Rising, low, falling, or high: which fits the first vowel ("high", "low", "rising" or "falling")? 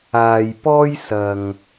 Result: low